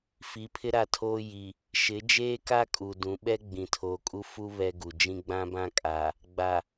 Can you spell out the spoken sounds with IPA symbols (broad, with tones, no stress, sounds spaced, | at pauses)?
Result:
f i˨˦ pʰ ɪ˦ ɾ a˦˨ tʰ oː˦ j i˨ | ʃ ɪ˨˦ d͡ʒ eː˦ k a˦ kʼ u˨ d ũ˨˦ ɓ ɛ˦ ɡ͡b ĩ˨ tʰ oː˨ kʼ u˦ f u˦ β ɛ˦ ɡ u˨ d͡ʒ ĩ˦ ɡ͡b ã˦ b ã˦ kʼ a˨ | ɡ͡b a˨